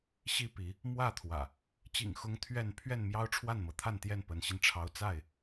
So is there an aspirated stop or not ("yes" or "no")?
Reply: yes